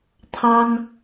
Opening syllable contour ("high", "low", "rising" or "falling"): high